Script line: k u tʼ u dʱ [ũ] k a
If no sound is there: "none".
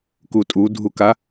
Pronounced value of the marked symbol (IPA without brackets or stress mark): u